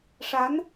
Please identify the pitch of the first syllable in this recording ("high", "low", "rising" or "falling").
rising